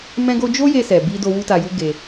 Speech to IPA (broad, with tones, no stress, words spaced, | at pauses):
mɛ̃˦ɡo˦ d͡ʒo˦je˧sɛ˨ bi˧do˧ wu˦ta˧ju˦ ɡe˧